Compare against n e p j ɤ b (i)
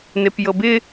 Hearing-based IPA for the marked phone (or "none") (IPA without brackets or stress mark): ɪ